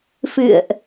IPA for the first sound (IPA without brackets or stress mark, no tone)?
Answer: f